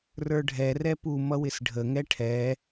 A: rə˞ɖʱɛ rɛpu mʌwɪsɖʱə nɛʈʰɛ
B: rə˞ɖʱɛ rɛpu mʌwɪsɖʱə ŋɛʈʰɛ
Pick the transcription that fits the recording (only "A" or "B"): B